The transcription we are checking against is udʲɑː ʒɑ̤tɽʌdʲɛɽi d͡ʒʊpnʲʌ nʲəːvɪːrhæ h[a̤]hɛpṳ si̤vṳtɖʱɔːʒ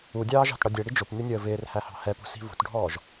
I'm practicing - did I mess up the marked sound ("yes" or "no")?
yes